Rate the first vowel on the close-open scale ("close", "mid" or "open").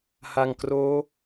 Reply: open